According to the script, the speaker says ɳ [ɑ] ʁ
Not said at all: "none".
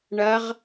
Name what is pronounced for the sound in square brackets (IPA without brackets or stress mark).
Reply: ɐ